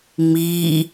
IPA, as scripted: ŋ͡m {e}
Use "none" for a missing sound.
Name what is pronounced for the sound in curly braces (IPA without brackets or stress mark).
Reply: i